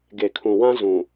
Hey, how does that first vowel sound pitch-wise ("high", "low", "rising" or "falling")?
low